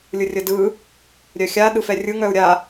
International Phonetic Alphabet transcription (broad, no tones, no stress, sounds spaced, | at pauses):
lʲ ɯ rʲ ə d ɯ | ɾʲ œ xʲ a ɗ ɯ f ɛ rʲ ɯ ŋ œ u̯ ɾʲ a